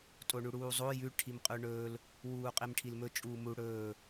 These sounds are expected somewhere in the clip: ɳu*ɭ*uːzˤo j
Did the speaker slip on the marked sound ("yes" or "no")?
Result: yes